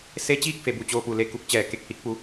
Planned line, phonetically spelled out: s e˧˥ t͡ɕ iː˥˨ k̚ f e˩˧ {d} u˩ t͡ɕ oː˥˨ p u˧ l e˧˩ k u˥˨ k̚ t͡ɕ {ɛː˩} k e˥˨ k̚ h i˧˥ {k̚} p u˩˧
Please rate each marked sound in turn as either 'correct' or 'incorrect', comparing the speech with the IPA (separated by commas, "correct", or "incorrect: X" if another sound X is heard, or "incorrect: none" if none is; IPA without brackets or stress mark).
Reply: incorrect: b, correct, correct